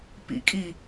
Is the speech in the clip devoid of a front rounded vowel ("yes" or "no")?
yes